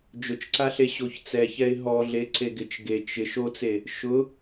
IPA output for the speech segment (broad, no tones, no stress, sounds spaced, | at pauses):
d͡ʒ ʊ t͡ʃ ǀ a ɬ e ɕ o ç t͡s ɛ ç ɛ ɪ̯ ɦ ɔ ɮ e ǀ e ɡ ɪ t͡ʃ ɡ e t͡ʃ ɪ ʃ o t͡s e | ʃ ʊ